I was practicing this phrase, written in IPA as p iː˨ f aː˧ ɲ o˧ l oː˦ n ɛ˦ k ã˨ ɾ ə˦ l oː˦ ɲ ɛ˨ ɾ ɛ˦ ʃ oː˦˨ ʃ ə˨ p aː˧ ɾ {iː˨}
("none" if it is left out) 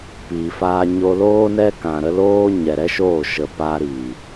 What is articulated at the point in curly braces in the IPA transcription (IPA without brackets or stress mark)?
iː˨